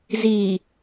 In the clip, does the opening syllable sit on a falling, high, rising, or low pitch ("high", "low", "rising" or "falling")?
low